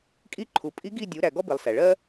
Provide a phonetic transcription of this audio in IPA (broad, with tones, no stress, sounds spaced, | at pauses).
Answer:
kʼ i˦˨ ǃʰ u˩ pʼ i˧˥ ɡ i˦˨ dʲ u˩˧ ɾ æ˩ ɡ ɔ˥ b i˩ lˠ s æ˩ ɭ ɜ˥